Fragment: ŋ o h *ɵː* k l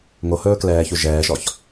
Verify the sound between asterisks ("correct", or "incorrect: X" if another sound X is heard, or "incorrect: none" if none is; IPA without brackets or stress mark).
correct